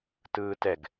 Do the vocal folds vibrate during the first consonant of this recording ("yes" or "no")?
no